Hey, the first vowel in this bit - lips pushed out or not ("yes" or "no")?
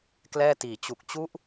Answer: no